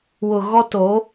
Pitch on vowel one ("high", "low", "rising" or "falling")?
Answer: low